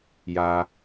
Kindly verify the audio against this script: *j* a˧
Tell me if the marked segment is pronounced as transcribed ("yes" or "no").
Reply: yes